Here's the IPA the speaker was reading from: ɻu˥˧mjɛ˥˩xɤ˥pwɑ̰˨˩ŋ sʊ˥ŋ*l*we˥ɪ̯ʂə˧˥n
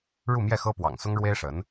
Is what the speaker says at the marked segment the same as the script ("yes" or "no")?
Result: no